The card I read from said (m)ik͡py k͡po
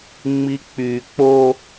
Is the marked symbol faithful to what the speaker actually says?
no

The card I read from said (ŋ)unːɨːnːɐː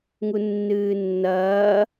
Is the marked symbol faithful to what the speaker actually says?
yes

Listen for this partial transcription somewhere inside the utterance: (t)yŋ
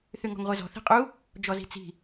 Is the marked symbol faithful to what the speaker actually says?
no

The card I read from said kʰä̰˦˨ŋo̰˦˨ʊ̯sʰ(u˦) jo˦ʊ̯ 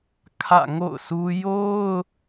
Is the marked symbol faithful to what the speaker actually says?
yes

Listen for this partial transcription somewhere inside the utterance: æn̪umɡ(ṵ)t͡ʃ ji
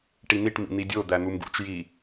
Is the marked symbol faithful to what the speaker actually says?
yes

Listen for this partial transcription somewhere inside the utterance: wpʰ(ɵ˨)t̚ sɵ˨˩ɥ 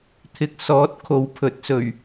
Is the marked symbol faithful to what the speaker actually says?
no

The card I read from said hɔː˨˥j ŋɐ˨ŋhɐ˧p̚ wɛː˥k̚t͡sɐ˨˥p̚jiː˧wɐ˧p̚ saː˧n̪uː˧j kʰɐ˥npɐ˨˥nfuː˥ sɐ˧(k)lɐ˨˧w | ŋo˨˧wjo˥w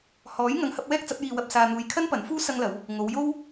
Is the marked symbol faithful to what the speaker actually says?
no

